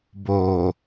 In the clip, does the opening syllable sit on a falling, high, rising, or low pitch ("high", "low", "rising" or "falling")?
low